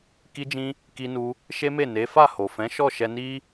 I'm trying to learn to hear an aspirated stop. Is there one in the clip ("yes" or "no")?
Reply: no